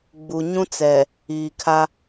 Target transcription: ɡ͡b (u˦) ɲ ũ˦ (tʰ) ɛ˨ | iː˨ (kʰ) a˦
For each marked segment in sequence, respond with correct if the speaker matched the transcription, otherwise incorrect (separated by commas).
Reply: incorrect, incorrect, correct